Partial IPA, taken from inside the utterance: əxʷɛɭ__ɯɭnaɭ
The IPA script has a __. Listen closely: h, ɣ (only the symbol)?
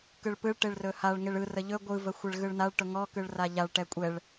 ɣ